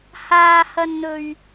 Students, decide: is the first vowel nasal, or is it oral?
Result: oral